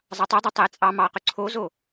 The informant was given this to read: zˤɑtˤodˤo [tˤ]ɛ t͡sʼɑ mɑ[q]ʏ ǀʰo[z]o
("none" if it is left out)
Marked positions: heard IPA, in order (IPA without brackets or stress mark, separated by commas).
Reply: tˤ, q, z